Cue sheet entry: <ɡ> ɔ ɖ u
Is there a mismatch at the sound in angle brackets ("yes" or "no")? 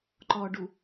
yes